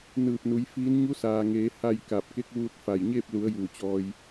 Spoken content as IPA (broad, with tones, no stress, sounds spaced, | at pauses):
n ɯː˧˩ p̚ n u˩˧ j f iː˧˥ n ɲ u˧˥ s aː˩ ŋ eː˩˧ h a˥˨ j k a˧˩ p̚ k e˧˥ k̚ ʋ uː˧ t̚ f a˧˩ j ɲ eː˥˨ p̚ l u˩˧ ə̯ j uː˧˩ t͡ɕ ɔː˧ j